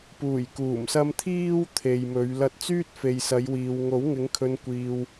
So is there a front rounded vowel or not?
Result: yes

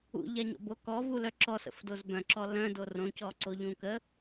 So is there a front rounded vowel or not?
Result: yes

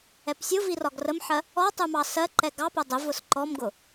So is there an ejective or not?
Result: no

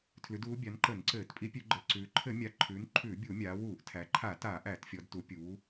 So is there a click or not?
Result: yes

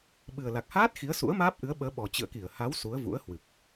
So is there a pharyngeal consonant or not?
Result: no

